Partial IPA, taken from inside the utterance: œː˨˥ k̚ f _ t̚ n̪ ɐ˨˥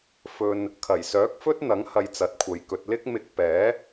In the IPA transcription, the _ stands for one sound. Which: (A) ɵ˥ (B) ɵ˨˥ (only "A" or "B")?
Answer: A